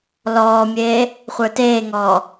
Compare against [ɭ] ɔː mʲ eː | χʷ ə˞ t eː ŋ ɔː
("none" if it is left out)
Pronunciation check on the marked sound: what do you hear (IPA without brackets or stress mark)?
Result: l